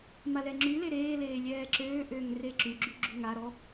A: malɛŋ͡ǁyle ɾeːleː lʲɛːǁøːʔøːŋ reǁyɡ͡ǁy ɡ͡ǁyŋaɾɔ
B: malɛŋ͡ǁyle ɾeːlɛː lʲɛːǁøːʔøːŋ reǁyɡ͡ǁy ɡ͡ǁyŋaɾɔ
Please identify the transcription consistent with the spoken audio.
A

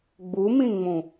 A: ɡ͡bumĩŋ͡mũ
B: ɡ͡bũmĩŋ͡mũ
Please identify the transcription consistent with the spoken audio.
A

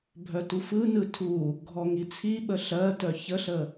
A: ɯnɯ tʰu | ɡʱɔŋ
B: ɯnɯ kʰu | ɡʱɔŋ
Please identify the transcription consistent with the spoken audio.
A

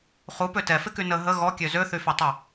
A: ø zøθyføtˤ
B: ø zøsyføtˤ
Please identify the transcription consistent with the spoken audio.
A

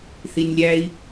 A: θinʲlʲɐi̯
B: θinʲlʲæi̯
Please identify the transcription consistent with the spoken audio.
B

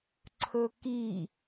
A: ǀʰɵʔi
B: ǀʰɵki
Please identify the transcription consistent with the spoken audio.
B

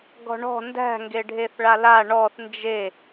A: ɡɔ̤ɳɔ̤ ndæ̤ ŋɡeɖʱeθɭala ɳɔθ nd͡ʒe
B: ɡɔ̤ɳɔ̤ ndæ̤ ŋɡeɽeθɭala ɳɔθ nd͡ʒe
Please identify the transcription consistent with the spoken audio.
A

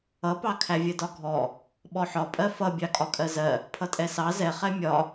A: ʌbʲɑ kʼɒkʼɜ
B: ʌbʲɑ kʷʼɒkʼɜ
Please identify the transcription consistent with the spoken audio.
A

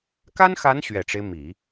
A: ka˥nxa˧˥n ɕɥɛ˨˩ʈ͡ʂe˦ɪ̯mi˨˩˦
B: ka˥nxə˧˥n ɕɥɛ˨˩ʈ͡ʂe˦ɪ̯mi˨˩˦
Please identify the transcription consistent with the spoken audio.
A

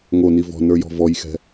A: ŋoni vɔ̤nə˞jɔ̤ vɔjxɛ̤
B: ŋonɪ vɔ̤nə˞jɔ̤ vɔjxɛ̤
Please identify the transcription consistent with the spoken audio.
A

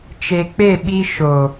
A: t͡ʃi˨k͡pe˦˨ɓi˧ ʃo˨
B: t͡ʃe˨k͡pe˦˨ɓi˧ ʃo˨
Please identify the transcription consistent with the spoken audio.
B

